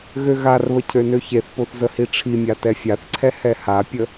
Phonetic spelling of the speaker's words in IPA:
ɣ ø ɣ a r β ə cʰ ø n ø ç e θ p o θ z ə h i ʈ͡ʂʰ i mʲ a t ɛ fʲ a θ ǀʰ ɛ h ɛ h a pʲ ə

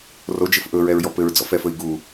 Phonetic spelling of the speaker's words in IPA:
r o d͡ʒ ɘ f ʔ ɵ ɹ ɛ ɹ j ɔ p ɘ ɹ d͡z ɔ̰ f ɛ f ɵ i̯ ɡ u

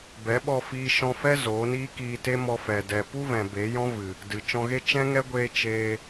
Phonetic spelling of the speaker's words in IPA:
b ɛ˨˦ ɓ ɔ˧ f iː˧ ʃ ɔ̃˧ f ɛ˦ z oː˨˦ n iː˦ k iː˧ t e˦ m ɔ˧ f ɛ˨ d ɛ˨ p u˦ v ɛ̃˨ b e˨˦ j ɔ̃˦ v ɨ˨ | d ɨ˨ t͡ʃ ɔ̃˧ ɣ e˦ t͡ʃ ɛ̃˦ ŋ ɛ˦ ɡʷ eː˧ t͡ʃ eː˧

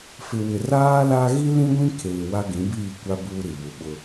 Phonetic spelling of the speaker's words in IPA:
f ɪ˨ w ɪ˨ r aː˦ l a˦ ɣ i˦ l ĩ˦ ɡʷ ĩ˦ kʰ eː˨ w a˦ ɡ ĩ˨˦ b iː˦˨ kʷ a˦ b uː˦ ɾ i˨ β u˨ ɓ ʊ˦

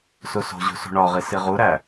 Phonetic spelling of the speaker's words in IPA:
s u s o̤ ʑ ṳ s ṳ ɳ ɒ ʁ i s i ʁ u ɾ æ

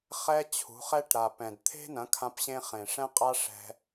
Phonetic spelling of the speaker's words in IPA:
χ ɛ˦ t͡ɕʰ ṳ˨˦ χ ɛ˦ ʈ ɾ a˨ p ɛ̃˨ d t̪ʰ e̤˦ n ɐ̃˨˦ kʰ ã˧ p ɕ ẽ˧ χ ẽ˨ ʂ ɛ̃˦ qʼ a˦ ʂ ɛ̤˧

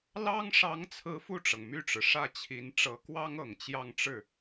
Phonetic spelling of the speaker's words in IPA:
l ɑ˥ ŋ ʂ ɑ˧˥ ŋ t͡sʰ ɹ̩˧˥ f u˥˩ ʈ͡ʂ ɤ˩ ŋ m y˥˩ ʈ͡ʂ ɻ̩˩ ʂ ä˥˩ t͡ɕʰ i˧˥ n ʈ͡ʂ ɤ˧˥ k w ɑ˥ ŋ ɤ˨˩ ŋ t͡ɕ j ɑ˥˧ ŋ ʈ͡ʂ ɻ̩˥˩

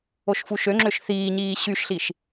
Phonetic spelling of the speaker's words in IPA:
o ʃ f u ʃ ø ŋ͡ǁ ø ʃ θ iː ɲ iː ɕ y ʃ ɬ i ʃ

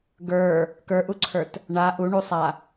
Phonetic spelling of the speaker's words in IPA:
ɡ ə˞ | k ə˞ ʔ u ǀʰ ə˞ t | ɳ a ʔ u ɳ u sˤ a

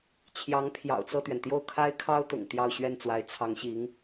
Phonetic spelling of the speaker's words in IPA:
t͡ɕʰ j ɑ˧˥ ŋ pʰ j ɑ̰˨˩ ʊ̯ t͡s ɤ˥˩ t̪ ɥ ɛ˩ n t̪ j o˥˩ ʊ̯ kʰ a˥ ɪ̯ kʰ ɑ˥ ʊ̯ t̪ ʊ̰˨˩ ŋ t̪ j ɑ˥˧ ʊ̯ ɕ ɥ ɛ˥˩ n t͡s w a˧˥ ɪ̯ t͡sʰ ɑ˧˥ ŋ ɕ i˧˥ ŋ

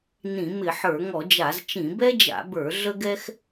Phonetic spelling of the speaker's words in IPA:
n ĩ˧˩˧ m ɪ˧˩˧ ħ ə˞˧˩˧ ŋ ɔ˧˩˧ d͡ʒ a˧˩˧ z t͡ʃ ĩ˧˩˧ b ɛ˥ d͡ʒ a̰˧˩˧ b ə˞˧˩˧ ɮ ə˥ ɡ ɛ˥ x

